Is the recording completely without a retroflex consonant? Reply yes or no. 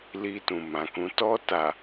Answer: yes